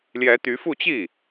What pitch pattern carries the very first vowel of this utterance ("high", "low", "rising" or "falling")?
rising